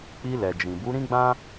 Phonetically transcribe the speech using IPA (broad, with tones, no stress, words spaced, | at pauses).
k͡pi˧lɛ˨d͡ʒĩ˨ bu˨˦ɾĩ˦ɡ͡bã˦